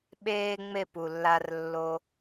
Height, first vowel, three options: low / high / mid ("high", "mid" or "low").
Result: mid